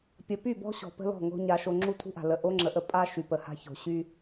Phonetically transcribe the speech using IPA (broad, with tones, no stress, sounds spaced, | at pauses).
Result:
pʲ ə˨ p y˦˨ b ɔ̤˦ ɕ ɔ̤˨ p ə̤˦ l ɔ̤˦˨ ŋ o̤˦ ɲ a˦ ʃ o˦ ŋ͡ǁ u˦ tʰ ṳ˦ ʔ a̤˨ l ə˨ ʔ o˦ ŋ͡ǁ ə˨˦ ʔ ə˨ pʼ a˦ ʃ y˨ p ə˨ h a̤˦ ç o̤˨ ɕ y˦